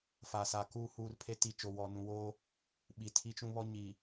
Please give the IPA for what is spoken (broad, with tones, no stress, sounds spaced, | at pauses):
f a˨ s a˨ k uː˨ h uː˨ r pʰ e˨ t i˨ t͡ʃ o˨ w ɔ˨ n ũ˨ w oː˦ | ɓ i˨ tʰ i˦ t͡ʃ ũ˦ β ɔ˦ ɲ i˨